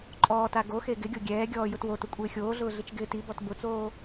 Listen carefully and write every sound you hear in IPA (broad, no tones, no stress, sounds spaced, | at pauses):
ǃʼ ɔː t a ɡ o x e ɡ ɪ ɡʲ o ɡʲ ɛː ɡʲ ɔː j ʊ t w o t ʊ kʷʼ ɪː xʲ oː ɮ ʊː ɮ ɪ t͡ʃ ɡ ɪː t i b ɔ t b ʊ t͡s oː